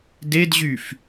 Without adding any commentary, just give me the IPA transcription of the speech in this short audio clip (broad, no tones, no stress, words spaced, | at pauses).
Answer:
dedʑyf